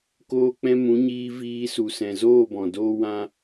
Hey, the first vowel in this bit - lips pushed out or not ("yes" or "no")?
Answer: yes